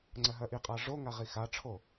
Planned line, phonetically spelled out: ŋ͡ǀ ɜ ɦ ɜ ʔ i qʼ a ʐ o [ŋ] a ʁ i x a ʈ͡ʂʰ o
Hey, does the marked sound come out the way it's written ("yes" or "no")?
yes